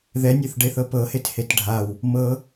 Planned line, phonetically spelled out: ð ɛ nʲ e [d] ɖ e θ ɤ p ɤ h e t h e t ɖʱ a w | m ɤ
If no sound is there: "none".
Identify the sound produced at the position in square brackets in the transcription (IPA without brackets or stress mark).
θ